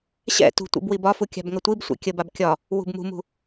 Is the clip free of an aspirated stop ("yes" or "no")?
yes